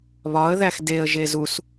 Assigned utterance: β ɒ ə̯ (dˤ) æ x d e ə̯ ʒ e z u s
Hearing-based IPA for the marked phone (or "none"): ð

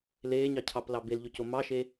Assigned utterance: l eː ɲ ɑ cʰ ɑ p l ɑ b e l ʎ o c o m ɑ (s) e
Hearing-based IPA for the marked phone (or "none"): ʃ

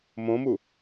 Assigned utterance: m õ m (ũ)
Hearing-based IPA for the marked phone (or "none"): u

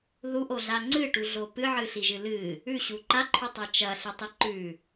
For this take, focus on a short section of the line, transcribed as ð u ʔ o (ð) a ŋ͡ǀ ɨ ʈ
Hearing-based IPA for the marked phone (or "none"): ɮ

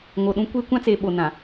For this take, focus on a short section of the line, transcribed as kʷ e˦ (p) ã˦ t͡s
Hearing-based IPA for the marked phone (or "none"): kʷ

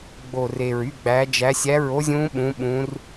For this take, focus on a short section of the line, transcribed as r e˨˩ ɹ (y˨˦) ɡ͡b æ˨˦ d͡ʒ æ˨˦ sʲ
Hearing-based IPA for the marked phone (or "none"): y˧˥˧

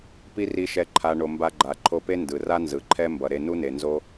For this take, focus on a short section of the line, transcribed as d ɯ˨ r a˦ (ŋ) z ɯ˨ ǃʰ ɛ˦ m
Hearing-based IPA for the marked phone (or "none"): n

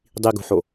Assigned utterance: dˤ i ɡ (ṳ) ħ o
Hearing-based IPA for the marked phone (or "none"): ṳ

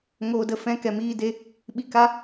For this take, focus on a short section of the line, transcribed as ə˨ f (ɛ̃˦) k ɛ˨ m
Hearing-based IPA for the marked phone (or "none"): ɛ̃˧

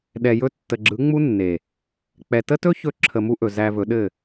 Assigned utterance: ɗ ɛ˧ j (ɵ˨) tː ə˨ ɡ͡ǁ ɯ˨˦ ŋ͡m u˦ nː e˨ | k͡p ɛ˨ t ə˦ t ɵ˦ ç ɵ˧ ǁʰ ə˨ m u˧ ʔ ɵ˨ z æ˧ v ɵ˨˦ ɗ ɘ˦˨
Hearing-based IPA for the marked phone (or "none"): ɵ˦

